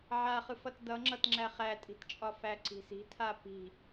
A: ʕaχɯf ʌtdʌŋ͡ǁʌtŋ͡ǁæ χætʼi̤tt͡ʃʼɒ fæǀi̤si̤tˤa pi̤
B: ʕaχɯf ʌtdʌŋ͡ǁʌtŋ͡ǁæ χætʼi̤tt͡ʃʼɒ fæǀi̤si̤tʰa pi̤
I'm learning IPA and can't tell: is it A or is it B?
B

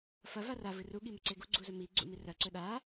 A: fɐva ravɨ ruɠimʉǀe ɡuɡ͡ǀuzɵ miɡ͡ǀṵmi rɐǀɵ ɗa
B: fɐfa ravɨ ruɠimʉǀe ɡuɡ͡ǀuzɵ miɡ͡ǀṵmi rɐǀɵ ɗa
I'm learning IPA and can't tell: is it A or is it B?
A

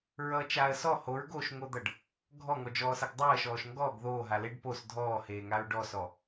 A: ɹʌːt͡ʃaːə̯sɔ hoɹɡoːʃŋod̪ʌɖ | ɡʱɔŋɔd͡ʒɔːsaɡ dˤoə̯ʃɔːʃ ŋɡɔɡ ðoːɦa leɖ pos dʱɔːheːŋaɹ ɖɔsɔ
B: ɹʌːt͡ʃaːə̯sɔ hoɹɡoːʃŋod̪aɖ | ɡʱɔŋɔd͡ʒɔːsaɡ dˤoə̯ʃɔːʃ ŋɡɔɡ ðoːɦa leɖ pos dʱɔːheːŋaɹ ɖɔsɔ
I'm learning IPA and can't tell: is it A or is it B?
A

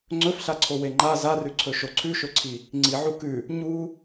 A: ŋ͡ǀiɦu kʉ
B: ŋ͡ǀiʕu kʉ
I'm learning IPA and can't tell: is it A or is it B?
B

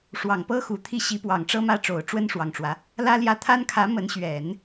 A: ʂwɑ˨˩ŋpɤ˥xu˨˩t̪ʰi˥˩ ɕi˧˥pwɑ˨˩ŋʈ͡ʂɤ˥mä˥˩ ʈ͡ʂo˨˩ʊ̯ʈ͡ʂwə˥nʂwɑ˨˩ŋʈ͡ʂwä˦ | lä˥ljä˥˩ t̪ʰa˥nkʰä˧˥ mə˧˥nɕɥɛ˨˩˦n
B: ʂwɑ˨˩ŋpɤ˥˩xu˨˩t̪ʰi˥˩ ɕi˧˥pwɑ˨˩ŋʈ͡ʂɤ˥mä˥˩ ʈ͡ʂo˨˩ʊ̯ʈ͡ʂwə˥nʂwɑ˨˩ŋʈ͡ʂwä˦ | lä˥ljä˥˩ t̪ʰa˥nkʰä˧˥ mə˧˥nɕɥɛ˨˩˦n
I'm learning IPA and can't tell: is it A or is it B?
A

